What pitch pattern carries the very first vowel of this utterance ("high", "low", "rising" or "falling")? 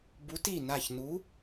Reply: rising